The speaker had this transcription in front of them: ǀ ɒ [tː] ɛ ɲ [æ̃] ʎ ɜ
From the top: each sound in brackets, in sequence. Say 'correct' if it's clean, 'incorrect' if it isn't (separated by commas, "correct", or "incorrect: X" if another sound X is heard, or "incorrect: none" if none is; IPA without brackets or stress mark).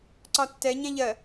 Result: correct, correct